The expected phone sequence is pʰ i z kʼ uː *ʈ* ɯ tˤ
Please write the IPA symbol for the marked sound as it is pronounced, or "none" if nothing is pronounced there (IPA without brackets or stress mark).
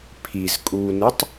n